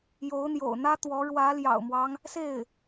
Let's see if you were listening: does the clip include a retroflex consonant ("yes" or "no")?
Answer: yes